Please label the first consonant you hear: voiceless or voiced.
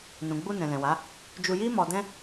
voiced